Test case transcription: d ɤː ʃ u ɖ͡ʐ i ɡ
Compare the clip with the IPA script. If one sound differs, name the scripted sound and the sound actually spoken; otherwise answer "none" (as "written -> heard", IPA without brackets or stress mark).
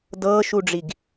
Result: none